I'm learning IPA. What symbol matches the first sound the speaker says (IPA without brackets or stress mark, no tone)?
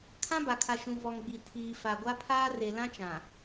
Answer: kʰ